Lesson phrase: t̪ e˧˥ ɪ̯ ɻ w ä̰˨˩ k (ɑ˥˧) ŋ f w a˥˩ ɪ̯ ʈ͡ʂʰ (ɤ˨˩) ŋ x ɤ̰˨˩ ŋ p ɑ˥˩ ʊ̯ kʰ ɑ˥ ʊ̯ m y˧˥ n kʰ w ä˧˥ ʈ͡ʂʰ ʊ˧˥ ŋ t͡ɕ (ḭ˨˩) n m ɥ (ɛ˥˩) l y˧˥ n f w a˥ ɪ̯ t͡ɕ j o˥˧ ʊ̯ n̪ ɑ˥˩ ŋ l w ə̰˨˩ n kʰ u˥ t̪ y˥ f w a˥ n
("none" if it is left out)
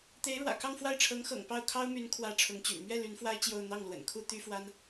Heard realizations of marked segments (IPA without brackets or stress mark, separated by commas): ɑ˥˧, ɤ˧˥, y̰˨˩, ɛ˥˩